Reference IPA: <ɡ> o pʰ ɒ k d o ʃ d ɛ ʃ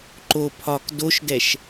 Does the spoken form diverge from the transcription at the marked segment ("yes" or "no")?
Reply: yes